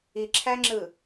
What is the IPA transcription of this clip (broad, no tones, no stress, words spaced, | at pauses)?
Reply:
iǁʰæŋ͡ǁɯ